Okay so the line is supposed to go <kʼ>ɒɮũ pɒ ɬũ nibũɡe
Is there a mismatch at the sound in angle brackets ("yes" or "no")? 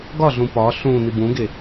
yes